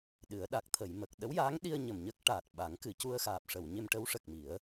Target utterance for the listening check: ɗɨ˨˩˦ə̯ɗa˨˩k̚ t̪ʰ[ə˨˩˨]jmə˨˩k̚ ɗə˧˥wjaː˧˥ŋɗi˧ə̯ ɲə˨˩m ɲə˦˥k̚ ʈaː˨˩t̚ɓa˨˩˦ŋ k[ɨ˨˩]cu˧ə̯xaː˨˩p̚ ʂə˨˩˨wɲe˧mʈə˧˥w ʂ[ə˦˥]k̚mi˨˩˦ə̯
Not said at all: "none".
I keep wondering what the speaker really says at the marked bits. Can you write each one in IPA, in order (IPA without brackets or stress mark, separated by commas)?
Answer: ə˨˩˨, ɨ˨˩˨, ə˨˩